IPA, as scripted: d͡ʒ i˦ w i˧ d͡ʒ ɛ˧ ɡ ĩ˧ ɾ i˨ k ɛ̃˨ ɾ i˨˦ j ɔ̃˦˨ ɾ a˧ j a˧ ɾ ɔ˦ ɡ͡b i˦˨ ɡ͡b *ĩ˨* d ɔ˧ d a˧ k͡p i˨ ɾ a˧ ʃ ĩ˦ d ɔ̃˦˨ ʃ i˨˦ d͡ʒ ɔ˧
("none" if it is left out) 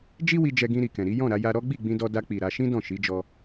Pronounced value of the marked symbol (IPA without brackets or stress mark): ĩ˧